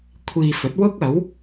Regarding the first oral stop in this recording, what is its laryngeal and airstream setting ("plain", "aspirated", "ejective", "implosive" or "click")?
aspirated